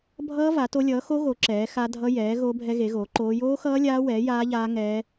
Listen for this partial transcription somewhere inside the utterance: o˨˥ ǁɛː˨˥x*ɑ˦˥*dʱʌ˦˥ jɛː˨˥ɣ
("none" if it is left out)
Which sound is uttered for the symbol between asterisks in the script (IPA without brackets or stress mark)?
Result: a˦˥